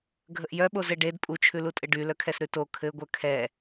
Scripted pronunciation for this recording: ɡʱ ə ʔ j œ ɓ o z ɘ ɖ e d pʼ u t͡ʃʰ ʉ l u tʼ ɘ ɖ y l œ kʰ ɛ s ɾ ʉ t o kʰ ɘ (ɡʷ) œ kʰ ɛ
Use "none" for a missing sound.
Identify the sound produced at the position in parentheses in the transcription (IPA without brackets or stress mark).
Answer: ɡʷ